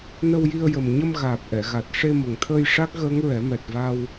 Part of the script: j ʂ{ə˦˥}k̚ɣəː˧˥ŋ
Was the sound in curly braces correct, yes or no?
no